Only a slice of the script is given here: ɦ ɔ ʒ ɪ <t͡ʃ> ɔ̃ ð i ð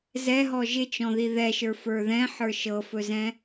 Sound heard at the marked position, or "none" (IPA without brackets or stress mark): t͡ʃ